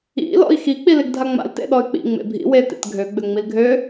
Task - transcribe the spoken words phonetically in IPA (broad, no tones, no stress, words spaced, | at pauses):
ḭ lɔ̰i̯xi k͡pileɡdʱaŋ͡ma̰l tḛɗɔy̯k͡pḭ ŋ͡mḛbʱḭ wetḛt ɡʱøɡ͡bøŋ͡mil ɡʱø